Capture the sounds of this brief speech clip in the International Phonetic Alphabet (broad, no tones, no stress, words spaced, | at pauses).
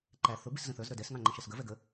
ǃæ θʊ biszə̃θə˞z ɾə˞dɛs ŋɑ̃ŋ͡ǃə̃ʃɛsɡə vɛɡə